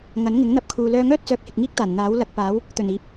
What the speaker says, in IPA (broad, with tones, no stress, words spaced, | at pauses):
ŋɐ˨˥nŋɪ˨˥ŋn̪ɐ˧p̚kʰuː˨ lœː˧ŋœː˥t̚ t͡sœː˧k̚hɪ˨k̚ŋiː˥k̚t̪aː˨˩n n̪aː˨˥wlɐ˧k̚paː˨˥w | t̪ɵ˨˩niː˨˥p̚